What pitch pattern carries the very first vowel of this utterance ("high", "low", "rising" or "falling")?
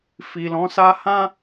low